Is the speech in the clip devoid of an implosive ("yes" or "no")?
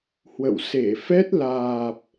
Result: yes